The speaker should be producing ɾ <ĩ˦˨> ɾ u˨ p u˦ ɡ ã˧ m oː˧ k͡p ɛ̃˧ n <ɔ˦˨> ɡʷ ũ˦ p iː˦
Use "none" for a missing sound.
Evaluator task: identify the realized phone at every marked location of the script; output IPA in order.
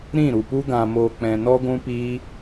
ĩ˦˨, ɔ˦

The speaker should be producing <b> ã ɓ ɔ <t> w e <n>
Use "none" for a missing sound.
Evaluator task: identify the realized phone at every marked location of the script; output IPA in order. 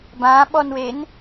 b, n, n

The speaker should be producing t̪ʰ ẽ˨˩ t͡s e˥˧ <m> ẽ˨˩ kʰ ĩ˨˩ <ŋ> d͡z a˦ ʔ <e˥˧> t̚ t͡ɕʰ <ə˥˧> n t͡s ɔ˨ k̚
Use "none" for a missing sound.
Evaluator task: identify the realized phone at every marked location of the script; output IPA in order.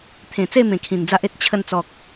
m, n, e˦, ə˧

